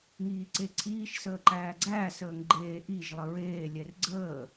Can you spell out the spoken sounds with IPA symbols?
ŋ iː ǀ e ǀʰ iː ʃ s əː ǃ æː ɡ͡ǀ æː s əː ŋ ɡ͡ǃ eː ʔ i ʒ lˠ ə ɹ eː lʲ ɛ r ɡ͡ǀ əː

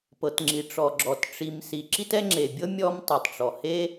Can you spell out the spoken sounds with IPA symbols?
p ɤ˩ t ŋ͡ǁ i˩ ʈ͡ʂ ɔ˩ ɡ͡ǁ ɔ˩ t ʈ͡ʂ i˩ m s i˩ ǁ i˥ t ɛ˥ ŋ͡ǁ e˩ bʲ ɤ˥ mʲ ɔ˥ m tˤ a˩ tˤ ʈ͡ʂ ɔ˩ h e˥

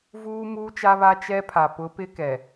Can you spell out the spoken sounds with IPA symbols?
v uː˦ m uː˦ t͡ʃ a˦ β a˦ t͡ʃ ɛ˦ pʰ a˨ p ʊ˨˦ p ɪ˦ k ɛ˨

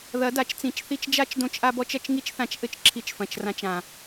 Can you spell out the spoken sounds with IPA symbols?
ð ɐ˨˦ d a˨ t͡ʃ t͡s ĩ˨˦ t͡ʃ θ i˧ t͡ʃ d͡ʒ a˦ t͡ʃ d õ˧ t͡ʃ ʔ a˧ b ɔ˧ t͡ʃ ɐ˧ t͡ʃ ŋ i˦ t͡ʃ θ ã˧ t͡ʃ ʔ ɘ˦ t͡ʃ ǁʰ i˧ t͡ʃ f ɐ̃˨ t͡ʃ r ã˧ t͡ʃ ã˨

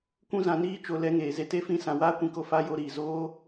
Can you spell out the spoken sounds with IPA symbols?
kʷ ũ˦ z ã˧ n iː˦ t͡ʃ o˧ l ɛ˨˦ ŋ eː˨ z e˧ t e˦ f ĩ˦ s ã˧ w aː˦ kʷ ĩ˧ k o˧ f a˧ j o˧ ɾ iː˨ z oː˦

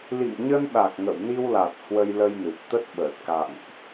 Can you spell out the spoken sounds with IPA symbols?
l ḭ˧˨ ŋ ɲ ə˧ n ɗ a˨˩ k̚ ŋ ə̰˧˨ w n i˧ w l a˨˩ t̚ h w ə˧ j l ə˧ j n ɨ˨˩ p̚ t̪ ə˦˥ t̚ ɓ əː˨˩ t̚ k a̰˧˨ ŋ ʔ

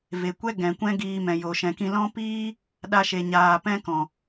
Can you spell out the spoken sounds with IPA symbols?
v e˨ kʷ ɛ˦ ɡ ɛ̃˨ kʷ ɛ̃˦ ɡ iː˧ m ɛ̃˨ j o˨ ʃ ɛ̃˨ k ĩ˧ l ɔ̃˦ p iː˦ | ɗ a˧ ʃ e˨ ɲ aː˨ p ɛ̃˦ k ɔ̃˨

